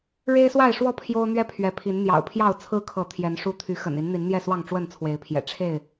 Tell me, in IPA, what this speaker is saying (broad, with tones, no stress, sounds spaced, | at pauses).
ɻ e˦ ɪ̯ s w a˥˨ ɪ̯ ʂ w ɔ˥˨ pʰ j o˦ ʊ̯ n̪ ɥ ɛ˦ pʰ ɥ ɛ˨˦ pʰ i˨˦ n n̪ j ɑ̰˨˩ ʊ̯ pʰ j ɑ˥˨ ʊ̯ t͡sʰ ɹ̩˦ kʰ ɤ˨˦ t̪ʰ j ɛ˨˦ n ʂ u˦ t̪ʰ y˨˦ x ə̰˨˩ n i˨˦ n n̪ i˨˦ n n̪ j ɛ˥˨ s w ɑ˥˨ ŋ ʈ͡ʂ w ə˥˨ n t͡sʰ w e˨˦ ɪ̯ pʰ j ɛ̰˨˩ ʈ͡ʂʰ e˥˨ ɪ̯